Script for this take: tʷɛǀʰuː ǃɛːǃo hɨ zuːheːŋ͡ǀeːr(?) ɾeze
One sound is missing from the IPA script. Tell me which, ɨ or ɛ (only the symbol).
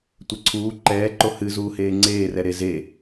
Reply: ɛ